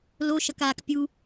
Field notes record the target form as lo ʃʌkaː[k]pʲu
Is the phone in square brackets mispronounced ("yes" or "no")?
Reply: no